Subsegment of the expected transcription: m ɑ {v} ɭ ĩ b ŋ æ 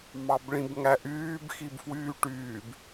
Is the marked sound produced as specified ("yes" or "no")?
no